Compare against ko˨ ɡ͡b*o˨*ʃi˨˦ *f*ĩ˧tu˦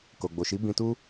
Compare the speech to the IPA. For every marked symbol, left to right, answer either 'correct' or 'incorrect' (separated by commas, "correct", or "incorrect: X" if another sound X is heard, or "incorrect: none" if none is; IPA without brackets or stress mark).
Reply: correct, incorrect: b